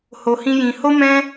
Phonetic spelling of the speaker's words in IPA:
h o˧ h ĩ˦ j ĩ˧ h o˦ m ɛ̃˦

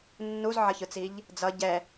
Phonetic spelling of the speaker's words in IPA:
nː u z ʕ ʌ ç ɯ t͡s i ʎ | d͡z ʌ ɟ ɛ

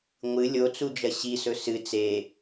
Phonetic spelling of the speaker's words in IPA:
ŋʷ ɨ lʲ o t͡s u d͡ʒ ɐ ɕ i s ɵ s ɨ t͡s e

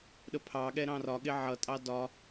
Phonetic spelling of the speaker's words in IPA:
ɗ ə pʰ ɑ ɠ ɛ ɾ ɑ̃ r ɒ ɠ ɪ ʕ ʌ tʼ ɑ d ɒ

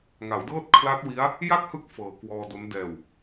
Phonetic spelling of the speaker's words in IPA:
ŋ a˩˦ w d ɤː˥˩ t̚ kʰ l a˦˥ t̚ w i˦˥ a̯ | j a˥˩ k̚ h ɯ˦˥ k̚ f ɤː˨˩ k w ɔː˧ d o˦˥ n d ɛː˨˩ w

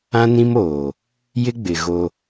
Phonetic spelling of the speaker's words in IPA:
ã˦ n ĩ˦ m oː˨ | j ɪ˦ ɡ͡b ɪ˨ ɣ o˦

